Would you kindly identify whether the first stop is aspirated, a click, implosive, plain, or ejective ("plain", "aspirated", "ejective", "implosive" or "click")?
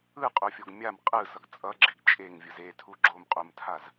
ejective